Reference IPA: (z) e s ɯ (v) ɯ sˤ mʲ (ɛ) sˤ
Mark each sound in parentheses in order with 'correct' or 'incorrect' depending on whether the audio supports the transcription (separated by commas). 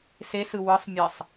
incorrect, incorrect, correct